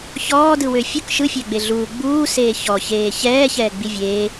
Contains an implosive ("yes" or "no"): no